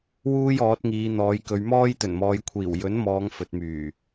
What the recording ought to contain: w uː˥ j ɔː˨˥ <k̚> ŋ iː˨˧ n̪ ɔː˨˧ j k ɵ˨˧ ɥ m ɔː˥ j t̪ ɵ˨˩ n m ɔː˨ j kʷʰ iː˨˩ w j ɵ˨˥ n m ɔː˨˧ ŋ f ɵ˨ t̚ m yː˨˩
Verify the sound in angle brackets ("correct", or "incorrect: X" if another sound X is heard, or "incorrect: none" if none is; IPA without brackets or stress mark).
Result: incorrect: t̚